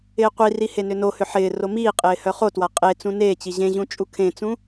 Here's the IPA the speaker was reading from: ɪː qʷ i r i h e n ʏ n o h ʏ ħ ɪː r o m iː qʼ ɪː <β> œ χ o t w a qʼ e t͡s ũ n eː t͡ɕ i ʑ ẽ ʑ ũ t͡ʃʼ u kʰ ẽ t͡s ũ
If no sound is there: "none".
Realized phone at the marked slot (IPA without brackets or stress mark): h